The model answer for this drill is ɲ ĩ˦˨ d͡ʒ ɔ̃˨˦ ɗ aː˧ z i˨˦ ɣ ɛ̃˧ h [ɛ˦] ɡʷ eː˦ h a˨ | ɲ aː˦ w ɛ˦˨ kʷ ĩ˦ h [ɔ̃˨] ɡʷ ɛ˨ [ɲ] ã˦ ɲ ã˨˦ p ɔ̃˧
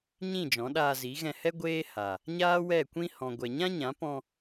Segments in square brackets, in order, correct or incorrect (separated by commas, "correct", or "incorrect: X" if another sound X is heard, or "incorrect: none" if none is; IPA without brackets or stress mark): correct, correct, correct